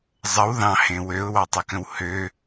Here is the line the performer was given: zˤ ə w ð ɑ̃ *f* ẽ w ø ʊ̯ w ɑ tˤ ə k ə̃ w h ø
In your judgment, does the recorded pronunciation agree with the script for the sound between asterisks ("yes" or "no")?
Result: no